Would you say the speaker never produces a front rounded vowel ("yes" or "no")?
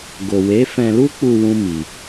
yes